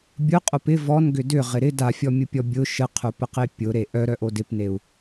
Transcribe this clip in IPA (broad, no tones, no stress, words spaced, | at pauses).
bʲʊqʼop ɪ vɔnɡʏ dʏʁɪ ɾɪ dafʲɔmʲʊpʲɔ bʲʊ ʃəqʰʊpəqe pʲʊɾe ʔœɾœʔo dɪpneu̯